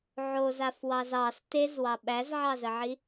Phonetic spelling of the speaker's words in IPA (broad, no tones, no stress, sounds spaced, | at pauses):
ʕ o z a f w ɑ z ɑ s t e z w ɑ ɓ æ z ʕ ɑ z ə ʕ i